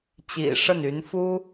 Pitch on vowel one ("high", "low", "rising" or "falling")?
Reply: low